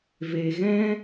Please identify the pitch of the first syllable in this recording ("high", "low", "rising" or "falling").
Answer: low